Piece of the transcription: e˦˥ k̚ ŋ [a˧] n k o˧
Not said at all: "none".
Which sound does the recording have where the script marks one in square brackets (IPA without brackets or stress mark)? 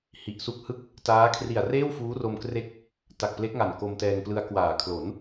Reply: a˨˩